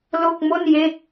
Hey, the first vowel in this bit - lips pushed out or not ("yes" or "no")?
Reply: yes